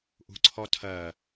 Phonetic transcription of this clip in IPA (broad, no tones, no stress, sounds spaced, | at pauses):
ʔ ṳ ǀʰ ɔ tʰ ɜ